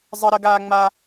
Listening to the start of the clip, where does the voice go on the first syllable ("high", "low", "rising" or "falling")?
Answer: high